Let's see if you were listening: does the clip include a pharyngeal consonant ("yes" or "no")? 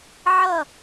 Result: yes